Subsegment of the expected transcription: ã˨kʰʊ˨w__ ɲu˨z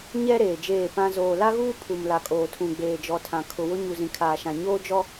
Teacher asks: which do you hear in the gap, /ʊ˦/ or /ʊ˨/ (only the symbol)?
ʊ˦